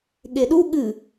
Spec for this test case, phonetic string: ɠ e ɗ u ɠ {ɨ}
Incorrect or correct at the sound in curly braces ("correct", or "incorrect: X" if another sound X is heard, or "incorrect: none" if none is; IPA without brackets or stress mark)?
correct